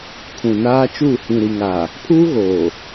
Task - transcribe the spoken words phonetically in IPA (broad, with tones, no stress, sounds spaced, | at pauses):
kʰ ũ˨ n aː˦ t͡ʃ uː˦˨ h ĩ˨ ɾ i˨ ŋ a˨ | pʰ uː˦ ɣ oː˨